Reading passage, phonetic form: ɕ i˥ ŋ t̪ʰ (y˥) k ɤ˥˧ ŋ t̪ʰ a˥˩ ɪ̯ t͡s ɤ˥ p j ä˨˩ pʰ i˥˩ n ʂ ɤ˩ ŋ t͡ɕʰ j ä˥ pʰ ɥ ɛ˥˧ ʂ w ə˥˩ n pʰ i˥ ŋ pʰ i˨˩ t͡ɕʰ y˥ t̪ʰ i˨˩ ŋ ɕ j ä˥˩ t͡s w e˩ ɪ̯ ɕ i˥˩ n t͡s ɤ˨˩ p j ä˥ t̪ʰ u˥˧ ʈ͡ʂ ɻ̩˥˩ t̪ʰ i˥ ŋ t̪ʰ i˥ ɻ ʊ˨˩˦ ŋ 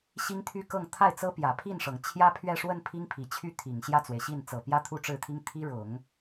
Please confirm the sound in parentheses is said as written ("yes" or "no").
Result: yes